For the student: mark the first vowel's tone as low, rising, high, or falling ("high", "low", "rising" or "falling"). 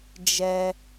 high